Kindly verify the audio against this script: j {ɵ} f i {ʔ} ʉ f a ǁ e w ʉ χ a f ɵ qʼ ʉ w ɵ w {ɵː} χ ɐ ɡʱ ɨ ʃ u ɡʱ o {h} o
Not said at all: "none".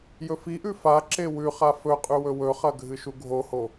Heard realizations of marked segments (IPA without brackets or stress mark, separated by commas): ɵ, ʔ, ɵ, h